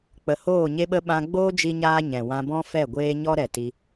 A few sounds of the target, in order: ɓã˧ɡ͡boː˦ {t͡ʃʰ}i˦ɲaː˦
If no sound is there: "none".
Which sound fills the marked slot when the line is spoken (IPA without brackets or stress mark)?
d͡ʒ